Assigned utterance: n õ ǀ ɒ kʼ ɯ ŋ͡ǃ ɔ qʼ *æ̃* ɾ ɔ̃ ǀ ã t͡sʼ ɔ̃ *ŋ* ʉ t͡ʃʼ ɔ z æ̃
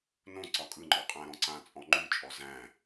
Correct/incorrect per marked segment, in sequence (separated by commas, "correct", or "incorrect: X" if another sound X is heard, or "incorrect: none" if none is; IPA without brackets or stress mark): correct, incorrect: ŋ͡ǃ